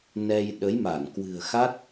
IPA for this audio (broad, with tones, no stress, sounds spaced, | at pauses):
n ɛ˧ j ɗ ə˨˦ j m a˧˩ n k w ɨ̤˨˩ ə̯ x a˦˥ t̚